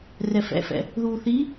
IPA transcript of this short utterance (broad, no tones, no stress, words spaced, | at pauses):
rɛfɛ̰fɛ̰ | ðuːθi